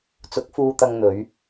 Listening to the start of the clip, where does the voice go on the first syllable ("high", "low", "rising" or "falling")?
rising